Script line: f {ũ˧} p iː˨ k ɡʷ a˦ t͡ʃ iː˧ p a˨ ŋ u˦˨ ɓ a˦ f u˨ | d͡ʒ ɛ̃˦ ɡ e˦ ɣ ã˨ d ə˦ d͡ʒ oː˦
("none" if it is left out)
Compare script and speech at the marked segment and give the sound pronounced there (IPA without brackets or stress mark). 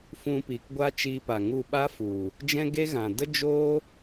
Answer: ũ˧